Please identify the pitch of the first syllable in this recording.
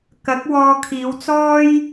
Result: rising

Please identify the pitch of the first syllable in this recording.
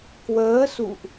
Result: rising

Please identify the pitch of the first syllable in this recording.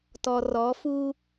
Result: low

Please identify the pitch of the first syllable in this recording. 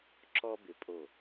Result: high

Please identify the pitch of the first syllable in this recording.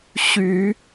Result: rising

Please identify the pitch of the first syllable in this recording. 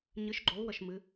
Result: rising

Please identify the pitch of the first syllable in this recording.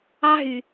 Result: high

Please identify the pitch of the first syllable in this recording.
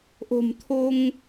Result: low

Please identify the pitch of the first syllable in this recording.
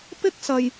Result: high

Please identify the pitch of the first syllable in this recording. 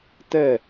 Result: falling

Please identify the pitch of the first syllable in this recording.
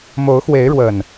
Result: rising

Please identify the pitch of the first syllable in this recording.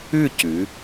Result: falling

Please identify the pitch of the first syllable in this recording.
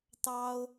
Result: high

